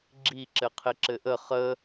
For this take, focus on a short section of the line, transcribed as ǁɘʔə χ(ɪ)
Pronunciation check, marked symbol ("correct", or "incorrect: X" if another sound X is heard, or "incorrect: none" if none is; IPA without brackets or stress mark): incorrect: ə